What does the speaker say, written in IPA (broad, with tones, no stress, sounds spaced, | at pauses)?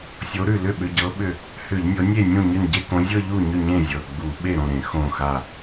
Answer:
sʲ o˨˦ ɾ ʉ˧˩ l ʏ˥˩ ɓ ʏ˩˧˩ ɟ ɤ˨˦ ɓ ʏ˧˩ | h ʏ˧˩˧ ʎ nʲ ɤ˨˦ nʲ e˥˩ nʲ ũ˥˩ ɲ ʏ˧˩ n ɟ e˥˧ k õ˨˦ zʲ ɤ˥˧ ʎ u˥˩ ɲ ʏ˥˩ ɲ ẽ˥˩ zʲ ɤ˩˧˩ ɡ͡b u˧˩˧ ɓ e˥˩ ɾ õ˥˩ ɾ ẽ˧˩˧ x õ˧˩ x a˧˩